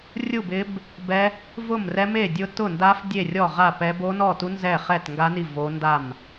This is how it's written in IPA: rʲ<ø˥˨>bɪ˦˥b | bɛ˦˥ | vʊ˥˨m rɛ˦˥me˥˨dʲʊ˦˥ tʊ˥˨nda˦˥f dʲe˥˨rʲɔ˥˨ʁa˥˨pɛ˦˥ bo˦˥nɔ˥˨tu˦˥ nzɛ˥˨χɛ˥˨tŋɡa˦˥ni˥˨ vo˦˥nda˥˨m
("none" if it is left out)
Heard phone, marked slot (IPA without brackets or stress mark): u˥˨